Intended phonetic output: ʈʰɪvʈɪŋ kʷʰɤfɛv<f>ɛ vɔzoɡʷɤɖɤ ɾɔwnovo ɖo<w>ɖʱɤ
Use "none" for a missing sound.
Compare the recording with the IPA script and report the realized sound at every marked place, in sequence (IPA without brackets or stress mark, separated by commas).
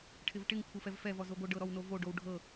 f, w